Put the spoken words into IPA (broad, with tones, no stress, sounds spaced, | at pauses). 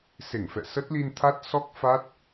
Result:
s e˧˩ ŋ f ɛ̰˧˨ s ə˦˥ t̚ l i˧ n t̪ʰ a˦˥ t̚ s ɔ˦˥ k̚ f a˦˥ t̚